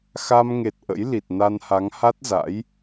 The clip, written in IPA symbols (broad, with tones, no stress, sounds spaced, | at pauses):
x a˧ m ŋ e˨˩ t̚ ʔ ə̰˧˥ j l i˨˩ t̚ n a˧ n h a˨˦ ŋ h a˦˥ t̚ z a̰˧˥ j